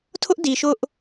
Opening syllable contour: high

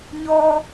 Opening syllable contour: high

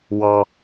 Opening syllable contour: high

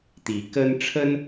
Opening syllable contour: rising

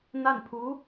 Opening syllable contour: falling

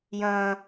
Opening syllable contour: high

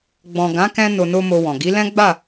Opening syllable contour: low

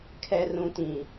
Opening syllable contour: low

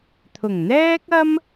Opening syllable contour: low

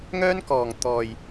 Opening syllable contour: high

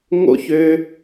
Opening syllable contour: falling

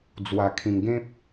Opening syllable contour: low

